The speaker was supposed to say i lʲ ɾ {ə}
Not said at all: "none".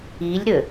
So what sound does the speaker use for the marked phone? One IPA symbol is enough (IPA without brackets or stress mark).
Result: ə